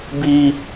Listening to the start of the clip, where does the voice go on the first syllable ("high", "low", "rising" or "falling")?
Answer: high